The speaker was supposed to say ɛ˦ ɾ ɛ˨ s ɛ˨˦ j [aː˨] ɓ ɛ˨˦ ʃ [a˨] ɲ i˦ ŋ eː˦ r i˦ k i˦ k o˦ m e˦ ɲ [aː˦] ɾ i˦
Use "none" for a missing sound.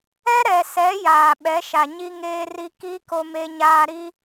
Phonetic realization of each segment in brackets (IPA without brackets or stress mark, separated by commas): aː˨, a˨, aː˦